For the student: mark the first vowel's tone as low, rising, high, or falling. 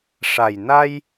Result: low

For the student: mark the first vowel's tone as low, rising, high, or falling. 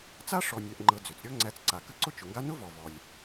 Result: high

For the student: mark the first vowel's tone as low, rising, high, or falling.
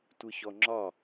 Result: low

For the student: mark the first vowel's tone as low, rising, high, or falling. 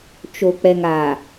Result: low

